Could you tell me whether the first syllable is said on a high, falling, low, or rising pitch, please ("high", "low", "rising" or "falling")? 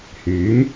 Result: rising